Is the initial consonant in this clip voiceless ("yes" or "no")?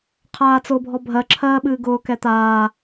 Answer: yes